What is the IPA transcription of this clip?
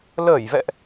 ləː˧˩jvɛ̰˧˨ʔ

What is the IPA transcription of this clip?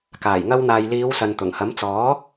kaː˨˩jŋɐ˧wn̪aː˨j liː˨˧wsɐ˨n t̪ʊ˨˩ŋhɐ˨˥mt͡sɔː˨˥

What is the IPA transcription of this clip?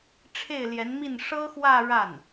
ʈ͡ʂʰe˥˩ɪ̯ljɛ˧˥nmi˥˩n ʂɤ˥xwä˥˧ ɻa˥˩n

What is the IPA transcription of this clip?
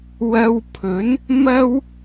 wɐ˧wpʰɵ˨˥n | mɐ˥w

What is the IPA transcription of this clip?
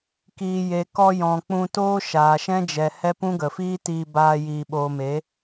kiː˨je˨kɔ˧ jɔ̃˨k͡pũ˧ toː˦ʃaː˨ʃɛ̃˦ d͡ʒɛ˨hɛ˦pũ˦ ɡə˨fiː˦tiː˧ baː˧ jiː˨ɓoː˨me˨˦

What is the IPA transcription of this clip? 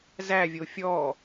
zævʲo fʲɔ

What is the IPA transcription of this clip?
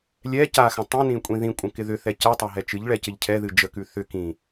lʲɛ caxə̃ tˤĩnĩ kʷʼĩðĩkʷʼə̃ kɪðʏθɛ cɛtˤa ɦɛt͡ʃɨʎɭɛ cɪʎcʰɛðɨ d͡ʒəkʉ θʏ kĩ

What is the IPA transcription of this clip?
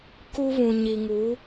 ku˦βũ˨ ɲi˨ŋu˨˦

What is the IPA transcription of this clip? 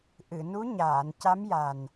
ʔɨ˨˩˨nu˧˥ ɲaː˨˩˨nca˧˥m ja˨˩n

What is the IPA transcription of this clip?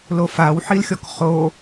lofaw ħilxʲɔkχo

